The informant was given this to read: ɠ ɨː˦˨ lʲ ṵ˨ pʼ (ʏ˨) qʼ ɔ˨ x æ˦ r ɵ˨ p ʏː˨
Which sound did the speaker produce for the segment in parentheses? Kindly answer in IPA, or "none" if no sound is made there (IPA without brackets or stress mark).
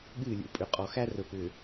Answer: ʏ˨